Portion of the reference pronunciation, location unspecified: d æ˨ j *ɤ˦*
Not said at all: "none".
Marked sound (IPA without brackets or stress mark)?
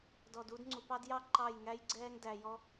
ɔ˦